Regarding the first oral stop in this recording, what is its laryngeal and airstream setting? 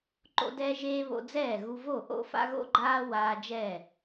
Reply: click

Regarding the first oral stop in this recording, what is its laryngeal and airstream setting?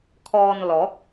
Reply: aspirated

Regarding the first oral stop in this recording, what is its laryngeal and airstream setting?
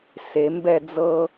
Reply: plain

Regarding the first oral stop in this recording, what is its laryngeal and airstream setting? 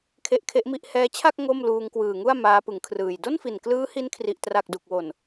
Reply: aspirated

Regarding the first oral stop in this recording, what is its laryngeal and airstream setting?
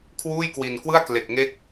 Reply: aspirated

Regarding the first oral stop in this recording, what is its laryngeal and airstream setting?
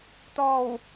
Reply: plain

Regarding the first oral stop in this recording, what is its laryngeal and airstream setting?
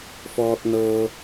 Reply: plain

